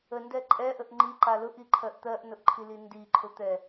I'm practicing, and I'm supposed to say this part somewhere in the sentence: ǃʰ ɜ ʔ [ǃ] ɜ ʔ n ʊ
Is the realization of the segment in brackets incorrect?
yes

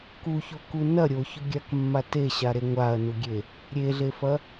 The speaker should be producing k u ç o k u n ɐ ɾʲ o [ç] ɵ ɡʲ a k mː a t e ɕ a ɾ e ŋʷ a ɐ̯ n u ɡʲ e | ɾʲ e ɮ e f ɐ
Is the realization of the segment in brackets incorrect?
no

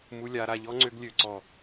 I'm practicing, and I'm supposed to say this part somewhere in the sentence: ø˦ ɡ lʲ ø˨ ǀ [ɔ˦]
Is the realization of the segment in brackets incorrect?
yes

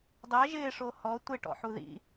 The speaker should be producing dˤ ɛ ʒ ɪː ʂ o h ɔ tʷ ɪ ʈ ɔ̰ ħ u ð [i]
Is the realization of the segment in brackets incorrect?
yes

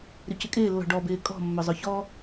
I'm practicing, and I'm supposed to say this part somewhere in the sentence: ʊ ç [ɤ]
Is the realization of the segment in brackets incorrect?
yes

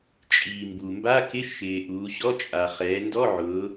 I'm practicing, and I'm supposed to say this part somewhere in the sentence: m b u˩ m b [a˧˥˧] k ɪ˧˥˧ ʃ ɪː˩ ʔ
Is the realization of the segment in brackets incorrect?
no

